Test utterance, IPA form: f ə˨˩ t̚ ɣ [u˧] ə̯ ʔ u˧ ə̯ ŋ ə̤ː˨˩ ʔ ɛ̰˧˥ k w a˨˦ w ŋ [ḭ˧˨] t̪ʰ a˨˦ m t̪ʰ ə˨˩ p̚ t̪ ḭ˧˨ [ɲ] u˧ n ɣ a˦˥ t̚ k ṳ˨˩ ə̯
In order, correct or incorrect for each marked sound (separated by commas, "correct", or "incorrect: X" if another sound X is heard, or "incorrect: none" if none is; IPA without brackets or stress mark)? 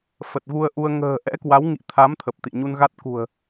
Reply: correct, correct, correct